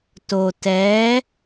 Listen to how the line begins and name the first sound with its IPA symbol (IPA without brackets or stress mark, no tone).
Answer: t